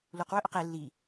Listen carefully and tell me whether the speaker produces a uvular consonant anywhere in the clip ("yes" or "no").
yes